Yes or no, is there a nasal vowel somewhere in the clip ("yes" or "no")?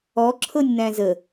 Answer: yes